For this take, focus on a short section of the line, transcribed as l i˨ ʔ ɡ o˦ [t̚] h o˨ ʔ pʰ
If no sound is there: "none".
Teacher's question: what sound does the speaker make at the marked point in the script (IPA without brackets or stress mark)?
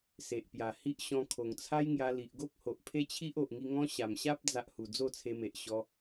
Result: k̚